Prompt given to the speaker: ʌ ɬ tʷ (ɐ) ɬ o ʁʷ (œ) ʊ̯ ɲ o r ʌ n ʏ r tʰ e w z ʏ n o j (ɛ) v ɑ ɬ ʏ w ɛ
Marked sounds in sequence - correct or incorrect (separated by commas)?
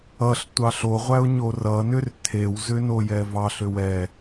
incorrect, incorrect, correct